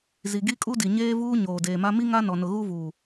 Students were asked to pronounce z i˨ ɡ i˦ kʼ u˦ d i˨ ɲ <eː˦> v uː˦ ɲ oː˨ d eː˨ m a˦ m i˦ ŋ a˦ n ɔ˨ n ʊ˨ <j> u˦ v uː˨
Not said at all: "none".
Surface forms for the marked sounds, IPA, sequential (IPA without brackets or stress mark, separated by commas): eː˦, ɣ